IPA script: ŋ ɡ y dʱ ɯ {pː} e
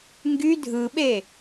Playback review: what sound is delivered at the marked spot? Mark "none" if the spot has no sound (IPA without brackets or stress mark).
ɓ